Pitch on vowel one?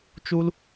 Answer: high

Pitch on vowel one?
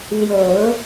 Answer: low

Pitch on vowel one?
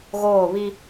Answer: falling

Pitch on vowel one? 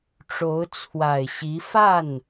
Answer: rising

